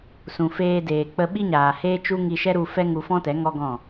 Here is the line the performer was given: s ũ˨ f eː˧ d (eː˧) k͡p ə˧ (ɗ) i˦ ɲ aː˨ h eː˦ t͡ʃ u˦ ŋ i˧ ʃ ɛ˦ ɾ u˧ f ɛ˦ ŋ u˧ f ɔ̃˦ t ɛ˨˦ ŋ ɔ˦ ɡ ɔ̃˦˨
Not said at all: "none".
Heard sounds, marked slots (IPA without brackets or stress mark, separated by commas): eː˨, ɓ